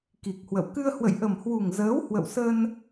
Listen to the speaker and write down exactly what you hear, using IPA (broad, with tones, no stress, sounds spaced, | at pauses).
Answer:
k i˨˩ k̚ h w ə̰˧˨ w k ɨ˧ ə̯ h w ə̰˧˨ j ʔ ə˨˩ m h w u˨˩ ŋ z əː˨˦ w h w ə̰˧˨ w s ə˧ n